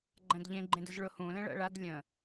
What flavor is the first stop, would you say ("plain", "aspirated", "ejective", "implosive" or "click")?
click